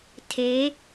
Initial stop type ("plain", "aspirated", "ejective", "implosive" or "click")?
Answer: aspirated